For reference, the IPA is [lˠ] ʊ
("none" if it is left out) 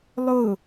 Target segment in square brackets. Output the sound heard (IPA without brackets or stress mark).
lˠ